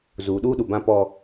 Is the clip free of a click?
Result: yes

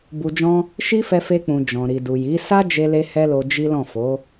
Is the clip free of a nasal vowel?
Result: no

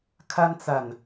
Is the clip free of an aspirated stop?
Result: no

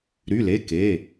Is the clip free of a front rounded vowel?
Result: no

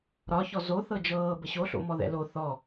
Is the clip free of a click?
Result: yes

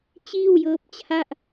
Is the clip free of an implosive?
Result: yes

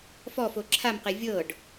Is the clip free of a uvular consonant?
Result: no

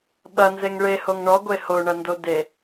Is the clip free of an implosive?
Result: no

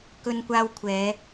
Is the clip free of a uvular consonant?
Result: yes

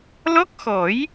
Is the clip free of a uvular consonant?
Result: yes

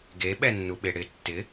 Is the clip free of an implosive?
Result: no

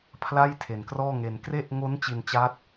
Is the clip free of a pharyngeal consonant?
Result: yes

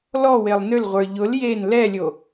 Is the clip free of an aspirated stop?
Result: yes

